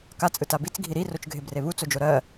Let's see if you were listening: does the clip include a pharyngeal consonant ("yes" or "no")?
no